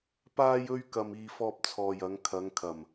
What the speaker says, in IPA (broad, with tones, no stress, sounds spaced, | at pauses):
p aː˥ j ɵ˥ ɥ k ɐ˧ m iː˧ f ɔː˧ p̚ t͡sʰ ɔː˨ j ɐ˨˧ ŋ kʰ ɐ˨˧ ŋ kʰ ɐ˨˩ m